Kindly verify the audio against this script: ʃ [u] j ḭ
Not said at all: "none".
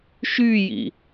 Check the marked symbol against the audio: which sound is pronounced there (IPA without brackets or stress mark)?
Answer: y